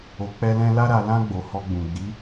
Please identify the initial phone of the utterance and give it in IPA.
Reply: o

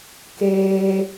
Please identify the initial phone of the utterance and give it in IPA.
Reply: k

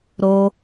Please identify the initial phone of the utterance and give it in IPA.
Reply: ɾ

